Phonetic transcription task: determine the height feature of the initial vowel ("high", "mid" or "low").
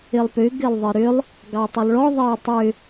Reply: high